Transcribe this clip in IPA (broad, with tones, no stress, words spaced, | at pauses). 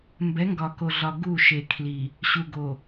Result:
mbɛ˨˦ŋɡɒ˨ko˨ɮɒ˨ ɡu˦˨ʃe˨kʰli˨ | ɕu˨ɡo˨